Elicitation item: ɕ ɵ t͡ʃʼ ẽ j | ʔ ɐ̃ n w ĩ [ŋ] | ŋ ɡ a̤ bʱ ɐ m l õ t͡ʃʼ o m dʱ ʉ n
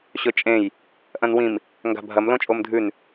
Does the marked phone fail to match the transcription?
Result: yes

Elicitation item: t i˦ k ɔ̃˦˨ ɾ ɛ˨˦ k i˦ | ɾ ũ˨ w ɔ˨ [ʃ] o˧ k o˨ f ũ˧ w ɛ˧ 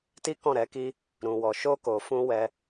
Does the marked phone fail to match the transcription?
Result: no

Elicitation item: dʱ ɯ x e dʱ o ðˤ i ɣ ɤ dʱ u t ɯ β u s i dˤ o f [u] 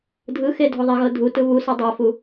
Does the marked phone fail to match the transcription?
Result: no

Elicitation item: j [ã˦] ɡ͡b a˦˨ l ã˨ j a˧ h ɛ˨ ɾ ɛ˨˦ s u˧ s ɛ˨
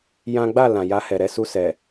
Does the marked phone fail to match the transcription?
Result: no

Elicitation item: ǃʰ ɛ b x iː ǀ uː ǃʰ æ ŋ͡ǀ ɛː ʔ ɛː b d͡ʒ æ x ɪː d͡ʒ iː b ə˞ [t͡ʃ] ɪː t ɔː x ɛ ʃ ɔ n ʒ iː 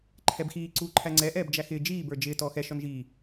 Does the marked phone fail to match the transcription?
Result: yes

